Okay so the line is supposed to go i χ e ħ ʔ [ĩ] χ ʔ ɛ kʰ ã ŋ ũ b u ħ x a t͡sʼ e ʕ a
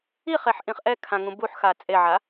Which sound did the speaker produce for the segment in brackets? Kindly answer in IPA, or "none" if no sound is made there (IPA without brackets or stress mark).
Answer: ĩ